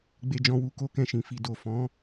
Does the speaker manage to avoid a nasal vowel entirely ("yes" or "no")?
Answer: no